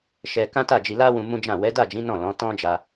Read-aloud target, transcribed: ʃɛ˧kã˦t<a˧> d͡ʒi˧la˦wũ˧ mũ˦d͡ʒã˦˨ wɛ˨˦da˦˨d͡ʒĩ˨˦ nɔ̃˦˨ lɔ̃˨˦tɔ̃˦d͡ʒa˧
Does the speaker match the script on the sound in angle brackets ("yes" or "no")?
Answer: no